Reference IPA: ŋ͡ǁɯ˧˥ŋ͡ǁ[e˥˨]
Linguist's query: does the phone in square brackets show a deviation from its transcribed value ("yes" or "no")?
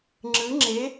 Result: yes